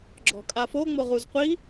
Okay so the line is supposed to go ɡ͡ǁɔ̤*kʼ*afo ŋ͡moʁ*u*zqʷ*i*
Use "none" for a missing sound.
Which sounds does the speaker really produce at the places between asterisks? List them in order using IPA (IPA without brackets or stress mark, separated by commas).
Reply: kʼ, u, i